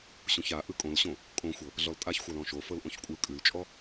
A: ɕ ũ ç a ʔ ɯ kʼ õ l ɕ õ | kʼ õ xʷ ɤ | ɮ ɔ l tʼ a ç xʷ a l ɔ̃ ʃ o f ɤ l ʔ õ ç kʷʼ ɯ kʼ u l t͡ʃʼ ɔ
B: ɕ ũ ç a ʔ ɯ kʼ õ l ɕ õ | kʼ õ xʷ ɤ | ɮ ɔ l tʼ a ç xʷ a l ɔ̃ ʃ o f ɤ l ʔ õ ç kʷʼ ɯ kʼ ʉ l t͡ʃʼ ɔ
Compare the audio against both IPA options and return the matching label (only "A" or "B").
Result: B